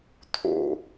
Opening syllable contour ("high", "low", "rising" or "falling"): low